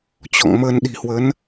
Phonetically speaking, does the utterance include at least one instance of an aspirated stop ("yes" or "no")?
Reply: no